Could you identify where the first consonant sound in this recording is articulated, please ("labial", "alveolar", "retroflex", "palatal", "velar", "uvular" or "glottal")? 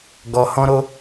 velar